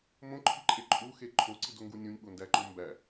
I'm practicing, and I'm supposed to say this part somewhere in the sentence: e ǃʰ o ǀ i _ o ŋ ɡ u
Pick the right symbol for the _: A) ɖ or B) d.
B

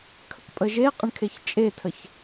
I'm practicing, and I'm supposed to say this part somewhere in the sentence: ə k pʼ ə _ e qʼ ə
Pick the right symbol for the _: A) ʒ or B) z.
A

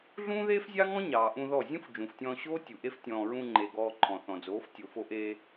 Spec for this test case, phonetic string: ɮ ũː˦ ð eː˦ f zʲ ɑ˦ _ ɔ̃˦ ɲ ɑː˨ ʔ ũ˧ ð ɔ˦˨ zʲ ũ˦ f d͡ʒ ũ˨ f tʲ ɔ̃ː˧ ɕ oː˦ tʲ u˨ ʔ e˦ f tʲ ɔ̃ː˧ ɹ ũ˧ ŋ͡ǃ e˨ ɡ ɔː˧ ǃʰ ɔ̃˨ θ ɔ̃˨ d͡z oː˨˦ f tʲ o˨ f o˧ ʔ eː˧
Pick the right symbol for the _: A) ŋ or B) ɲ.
A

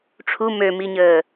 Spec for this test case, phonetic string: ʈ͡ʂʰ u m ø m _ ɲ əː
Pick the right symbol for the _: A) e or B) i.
B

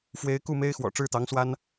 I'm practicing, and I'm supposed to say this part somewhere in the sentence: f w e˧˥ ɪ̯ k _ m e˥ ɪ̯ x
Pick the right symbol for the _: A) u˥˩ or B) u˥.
A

